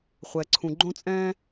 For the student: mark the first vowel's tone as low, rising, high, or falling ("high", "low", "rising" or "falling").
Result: low